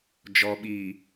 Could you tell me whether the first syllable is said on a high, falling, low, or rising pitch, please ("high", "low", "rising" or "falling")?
low